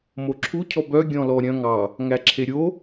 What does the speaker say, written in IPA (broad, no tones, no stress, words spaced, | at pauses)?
moǁʰu cʰɔbœ ɡʲɔ̃lɔɾʲœ̃ ŋɑ | ŋæǁʰeɾʲo